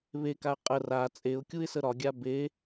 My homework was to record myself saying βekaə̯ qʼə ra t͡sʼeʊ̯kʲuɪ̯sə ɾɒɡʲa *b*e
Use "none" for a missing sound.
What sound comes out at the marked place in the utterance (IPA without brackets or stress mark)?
b